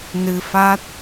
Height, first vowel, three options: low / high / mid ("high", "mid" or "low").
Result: high